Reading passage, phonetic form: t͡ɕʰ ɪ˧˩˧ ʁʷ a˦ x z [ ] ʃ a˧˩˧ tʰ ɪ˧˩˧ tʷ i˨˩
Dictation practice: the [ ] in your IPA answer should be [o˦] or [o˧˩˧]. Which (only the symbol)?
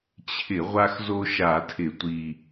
o˦